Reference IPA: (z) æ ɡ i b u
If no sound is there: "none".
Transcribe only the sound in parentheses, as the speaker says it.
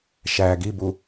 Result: ʃ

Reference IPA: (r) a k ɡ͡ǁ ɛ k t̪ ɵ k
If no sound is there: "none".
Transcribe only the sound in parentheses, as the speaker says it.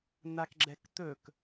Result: n̪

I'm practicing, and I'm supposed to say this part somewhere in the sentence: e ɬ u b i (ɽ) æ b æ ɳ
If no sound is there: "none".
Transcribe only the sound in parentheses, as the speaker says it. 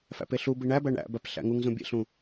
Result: ɳ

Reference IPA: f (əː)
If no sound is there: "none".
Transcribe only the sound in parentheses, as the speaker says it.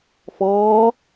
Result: ɔː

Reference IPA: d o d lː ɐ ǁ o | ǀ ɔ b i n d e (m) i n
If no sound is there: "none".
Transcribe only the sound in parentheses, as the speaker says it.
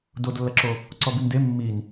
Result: mː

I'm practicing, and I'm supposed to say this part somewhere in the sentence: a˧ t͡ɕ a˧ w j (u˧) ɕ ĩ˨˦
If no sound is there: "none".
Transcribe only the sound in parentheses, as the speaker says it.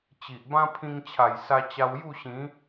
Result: u˥˧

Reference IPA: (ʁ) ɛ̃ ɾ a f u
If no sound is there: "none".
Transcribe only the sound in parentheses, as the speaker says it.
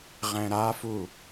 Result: ʁ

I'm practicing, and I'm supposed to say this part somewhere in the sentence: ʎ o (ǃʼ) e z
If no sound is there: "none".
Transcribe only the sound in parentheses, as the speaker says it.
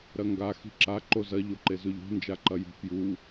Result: ǃ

